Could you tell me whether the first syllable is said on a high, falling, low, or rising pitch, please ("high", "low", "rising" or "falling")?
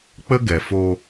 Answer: high